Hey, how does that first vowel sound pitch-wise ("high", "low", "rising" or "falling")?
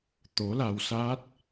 rising